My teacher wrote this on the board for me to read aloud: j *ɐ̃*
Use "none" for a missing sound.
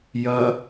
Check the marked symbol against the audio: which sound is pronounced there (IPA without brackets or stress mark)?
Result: ɐ